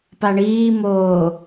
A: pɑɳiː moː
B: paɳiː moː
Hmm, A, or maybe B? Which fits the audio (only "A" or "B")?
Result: B